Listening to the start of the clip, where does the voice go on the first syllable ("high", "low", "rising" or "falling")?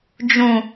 low